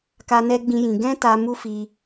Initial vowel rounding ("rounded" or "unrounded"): unrounded